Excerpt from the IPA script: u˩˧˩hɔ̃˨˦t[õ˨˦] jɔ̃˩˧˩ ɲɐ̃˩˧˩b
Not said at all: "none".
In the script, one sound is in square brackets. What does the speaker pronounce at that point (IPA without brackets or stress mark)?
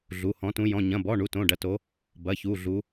ũ˨˦